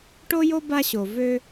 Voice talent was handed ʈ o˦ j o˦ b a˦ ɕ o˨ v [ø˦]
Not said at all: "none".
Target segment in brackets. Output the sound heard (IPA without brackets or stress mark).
ø˦